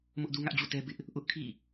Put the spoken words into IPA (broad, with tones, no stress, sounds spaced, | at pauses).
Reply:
m ʊ˦ ʔ d u˦ ŋ ä˦ ʔ d͡ʑ ṵ˦˨ t ɛ˦ b ɪ˦ ʔ | ʔ ʊ˦ ʔ kʰ ḭ˦˨